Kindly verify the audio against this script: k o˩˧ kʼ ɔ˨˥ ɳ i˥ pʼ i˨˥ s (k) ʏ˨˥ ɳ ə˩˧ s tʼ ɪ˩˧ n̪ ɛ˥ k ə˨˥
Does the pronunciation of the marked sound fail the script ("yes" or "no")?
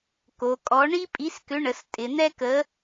no